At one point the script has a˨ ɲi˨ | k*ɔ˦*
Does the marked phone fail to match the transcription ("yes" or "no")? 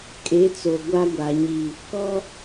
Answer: no